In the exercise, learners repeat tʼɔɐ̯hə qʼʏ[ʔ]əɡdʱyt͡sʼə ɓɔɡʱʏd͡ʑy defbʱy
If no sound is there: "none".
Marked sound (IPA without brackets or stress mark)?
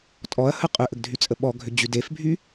ʔ